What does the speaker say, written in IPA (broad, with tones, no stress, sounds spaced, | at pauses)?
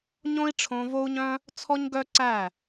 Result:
ɲ õ˦ i̯ ʈ͡ʂʰ õ˧ v o˦ u̯ ɲ œ̃˦ | t͡sʰ ɔ˦ ɲ ɡ œ˦ ǀ æ˦˨